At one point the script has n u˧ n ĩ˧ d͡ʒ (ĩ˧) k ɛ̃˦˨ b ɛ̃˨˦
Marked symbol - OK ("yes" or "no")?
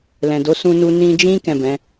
no